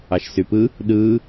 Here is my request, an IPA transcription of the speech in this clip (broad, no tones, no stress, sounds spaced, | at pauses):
ɑ ʃ s y p ɯ | ɗ ɯː